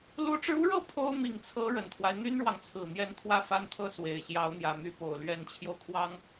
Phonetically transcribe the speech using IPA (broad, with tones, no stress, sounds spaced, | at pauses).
l u˧˥ ʈ͡ʂ ɻ̩˧ u˥ ɻ ɤ˥ pʰ o˥ ʊ̯ m i˨˩ ŋ t͡sʰ ɤ˧˥ ɻ ə˨˩ n t̪ʰ w a˦ ɪ̯ n̪ y˥ n ɻ w ɑ˨ ŋ t͡sʰ ɹ̩˨˩ n̪ j ɛ˧˥ n t̪ʰ w ä˥˩ f a˥ n t̪ʰ ɤ˥ s w e˨˩ ɪ̯ ɕ j ɑ˧˥ ʊ̯ n̪ j ä˨˩ m y˧˥ p o˨˩ ʊ̯ l ɥ ɛ˧˥ n t͡ɕʰ j o˧ ʊ̯ kʰ w ɑ˥ ŋ